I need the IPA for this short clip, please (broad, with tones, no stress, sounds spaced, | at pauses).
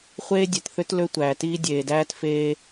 χʷ eː˦ dʲ e˨ t θ ø˦ t l ø˦ tʷ æː˨ t iː˦ dʲ eː˨ d æː˦ t f eː˦